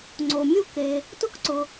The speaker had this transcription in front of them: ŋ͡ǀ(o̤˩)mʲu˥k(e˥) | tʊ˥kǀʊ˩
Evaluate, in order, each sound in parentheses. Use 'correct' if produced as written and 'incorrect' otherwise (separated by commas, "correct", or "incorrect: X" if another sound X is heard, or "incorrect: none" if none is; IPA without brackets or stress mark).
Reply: incorrect: o˩, incorrect: e˩